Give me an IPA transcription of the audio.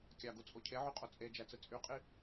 kʲɑɡut͡sʼo cʰeʕyqʼo t͡sʼed͡ʒæt͡sɯ t͡sʼyqʼi

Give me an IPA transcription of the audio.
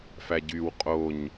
fæɟyw qʼoɲ

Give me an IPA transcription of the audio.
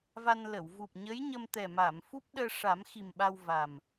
va˧nlə˨˩˨w vu˨˩p̚ɲə˧˥jɲə˧m t̪ɛ˨˩ma˨˩˨m fu˦˥p̚ɗəː˧ʂa˨˩˦mxi˨˩m ɓa˧wva˨˩m

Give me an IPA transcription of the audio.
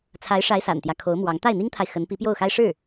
t͡sʰa˧˥ɪ̯ʂa˧˥ɪ̯ sa̰˨˩nt̪jä˦ kʰo˧˥ʊ̯mwɑ˧˥ŋ t̪a˥˩ɪ̯n̪i˥ŋt̪ʰa˨ɪ̯ xə˧˥npi˧˥pjo˥˩ʊ̯ xa˥ɪ̯ʂɻ̩˥˩

